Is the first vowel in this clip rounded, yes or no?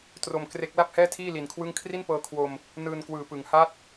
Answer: yes